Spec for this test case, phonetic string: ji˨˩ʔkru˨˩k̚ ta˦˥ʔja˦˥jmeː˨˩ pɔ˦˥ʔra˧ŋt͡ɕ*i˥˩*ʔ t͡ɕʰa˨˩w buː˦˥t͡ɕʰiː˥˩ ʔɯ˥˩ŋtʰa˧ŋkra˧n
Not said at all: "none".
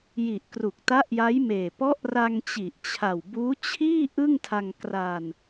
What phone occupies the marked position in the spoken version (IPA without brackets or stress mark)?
i˨˩